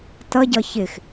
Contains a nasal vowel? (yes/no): no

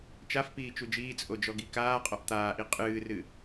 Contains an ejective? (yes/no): yes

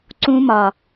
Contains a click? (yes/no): yes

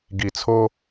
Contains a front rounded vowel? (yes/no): no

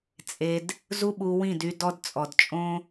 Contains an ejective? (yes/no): yes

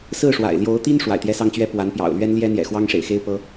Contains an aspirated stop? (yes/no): no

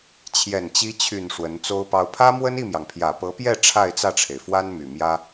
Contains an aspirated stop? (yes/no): yes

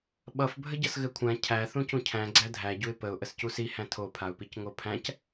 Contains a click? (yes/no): yes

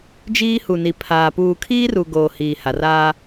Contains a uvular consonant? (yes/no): no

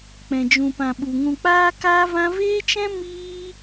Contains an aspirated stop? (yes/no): no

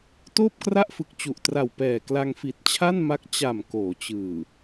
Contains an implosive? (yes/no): no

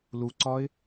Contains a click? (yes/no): yes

